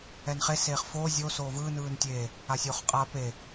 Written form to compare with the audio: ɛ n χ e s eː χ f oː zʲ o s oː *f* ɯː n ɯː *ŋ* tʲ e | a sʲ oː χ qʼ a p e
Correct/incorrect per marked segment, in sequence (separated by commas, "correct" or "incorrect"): incorrect, incorrect